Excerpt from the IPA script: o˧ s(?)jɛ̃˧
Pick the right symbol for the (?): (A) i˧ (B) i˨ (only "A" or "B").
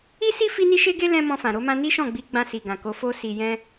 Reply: B